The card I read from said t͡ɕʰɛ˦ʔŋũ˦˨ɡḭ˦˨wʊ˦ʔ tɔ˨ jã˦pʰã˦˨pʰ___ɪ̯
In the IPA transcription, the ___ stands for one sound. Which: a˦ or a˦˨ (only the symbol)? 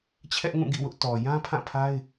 a˦